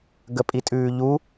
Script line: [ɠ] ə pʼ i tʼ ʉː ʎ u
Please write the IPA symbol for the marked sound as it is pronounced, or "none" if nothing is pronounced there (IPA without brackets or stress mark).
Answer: ɡ